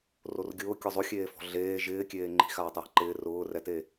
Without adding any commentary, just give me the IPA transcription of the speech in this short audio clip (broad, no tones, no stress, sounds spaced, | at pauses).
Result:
r o r ɡʲ ʊː kʲ ɔ zˤ o xʲ eː f ɔ̤ ɮ eː ʒ ɪː kʲ eː ŋ͡ǃ i̤ x aː tˤ j a̤ ǃ ɪː r ʊː r ɛ t e